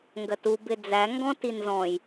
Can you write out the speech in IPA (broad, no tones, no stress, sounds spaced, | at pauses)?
ŋ ɡ ɜ t u b ɪ d͡z æ ŋ ɡ ɔ̃ t i n z ɔ̃ j